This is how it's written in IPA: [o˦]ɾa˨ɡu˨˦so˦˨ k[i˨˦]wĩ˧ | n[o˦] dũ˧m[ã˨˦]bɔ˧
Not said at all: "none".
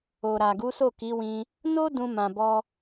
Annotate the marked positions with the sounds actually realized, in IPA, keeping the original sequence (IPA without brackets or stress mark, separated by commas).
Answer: o˨, i˨˦, o˦, ã˨